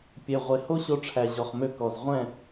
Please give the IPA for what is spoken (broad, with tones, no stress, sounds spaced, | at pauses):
pʲ e˨ ʁʷ e˨ h o˦ ɕ o˧ ʈ͡ʂʰ æ˨ ʑ ɔ˨ χ m ø˧ k ɔ˨ z ʁʷ ɛ̃˦˨